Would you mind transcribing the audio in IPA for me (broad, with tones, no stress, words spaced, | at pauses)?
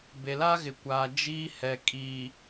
be˨la˦ɣɪ˨kʷaː˨ d͡ʒiː˦hɛ˨ kʼiː˨